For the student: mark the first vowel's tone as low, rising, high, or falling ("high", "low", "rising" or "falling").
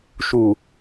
low